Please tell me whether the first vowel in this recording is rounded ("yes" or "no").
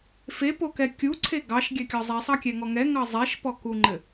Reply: no